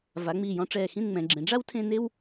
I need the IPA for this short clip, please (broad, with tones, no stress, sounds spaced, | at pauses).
v a˩˧ ŋ͡m iː˧˩ j ɔ̃˧ ʈ͡ʂ ɛː˧˩ x ĩ˥˧ n ŋ͡m ɛ̃˩˧ ɡ͡ǁ ẽ˩˧ ɖ͡ʐ a˥ w tʰ ẽ˥˧ n e˥ w